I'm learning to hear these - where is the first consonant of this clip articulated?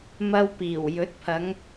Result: lips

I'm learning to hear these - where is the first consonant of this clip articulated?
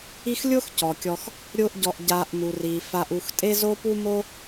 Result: velum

